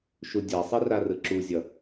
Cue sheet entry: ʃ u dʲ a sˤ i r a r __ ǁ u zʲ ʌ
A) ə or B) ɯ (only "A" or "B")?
B